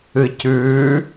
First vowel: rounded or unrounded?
unrounded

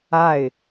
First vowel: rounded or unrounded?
unrounded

